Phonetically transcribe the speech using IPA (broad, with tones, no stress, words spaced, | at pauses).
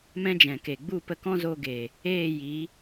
mɛ̃˦d͡ʒɛ̃˨ke˨ ɡ͡bu˦˨pə˧kɔ̃˦zo˧ ɡe˨ | eː˦˨ji˨˦